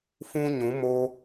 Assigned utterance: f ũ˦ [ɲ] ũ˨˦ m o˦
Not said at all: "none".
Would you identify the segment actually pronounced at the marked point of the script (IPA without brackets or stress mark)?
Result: ɲ